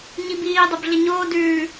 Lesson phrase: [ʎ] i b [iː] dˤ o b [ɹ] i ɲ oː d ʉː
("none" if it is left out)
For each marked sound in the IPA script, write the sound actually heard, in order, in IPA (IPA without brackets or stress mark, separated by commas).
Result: ɲ, iː, ɮ